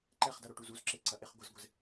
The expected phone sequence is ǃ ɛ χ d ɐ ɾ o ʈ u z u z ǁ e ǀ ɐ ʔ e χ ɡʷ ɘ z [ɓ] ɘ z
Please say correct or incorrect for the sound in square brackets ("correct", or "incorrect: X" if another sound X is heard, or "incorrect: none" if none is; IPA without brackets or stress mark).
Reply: incorrect: ɡʷ